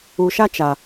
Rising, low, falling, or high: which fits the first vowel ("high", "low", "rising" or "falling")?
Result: low